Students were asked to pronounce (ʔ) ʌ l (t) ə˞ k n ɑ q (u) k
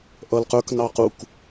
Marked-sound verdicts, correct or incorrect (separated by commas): correct, incorrect, correct